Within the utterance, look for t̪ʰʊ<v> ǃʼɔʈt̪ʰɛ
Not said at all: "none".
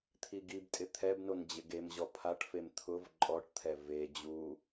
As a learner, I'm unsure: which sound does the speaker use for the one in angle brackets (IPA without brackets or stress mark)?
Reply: v